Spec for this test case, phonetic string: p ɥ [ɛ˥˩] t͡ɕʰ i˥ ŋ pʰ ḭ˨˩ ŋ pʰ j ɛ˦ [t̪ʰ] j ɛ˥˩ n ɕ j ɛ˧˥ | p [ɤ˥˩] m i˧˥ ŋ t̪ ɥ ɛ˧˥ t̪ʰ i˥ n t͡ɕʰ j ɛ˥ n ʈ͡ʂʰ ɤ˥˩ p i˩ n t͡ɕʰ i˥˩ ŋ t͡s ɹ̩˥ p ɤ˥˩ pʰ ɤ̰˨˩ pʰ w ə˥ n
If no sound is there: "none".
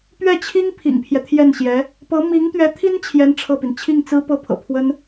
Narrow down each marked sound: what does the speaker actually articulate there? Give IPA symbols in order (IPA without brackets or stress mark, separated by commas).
ɛ˥˩, t̪ʰ, ɤ˧˥